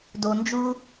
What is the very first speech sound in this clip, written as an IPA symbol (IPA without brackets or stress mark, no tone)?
d